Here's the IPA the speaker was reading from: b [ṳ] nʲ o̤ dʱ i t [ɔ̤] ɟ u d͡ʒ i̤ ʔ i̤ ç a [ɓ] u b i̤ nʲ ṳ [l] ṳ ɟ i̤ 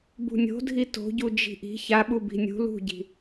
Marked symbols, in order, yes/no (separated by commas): yes, no, yes, yes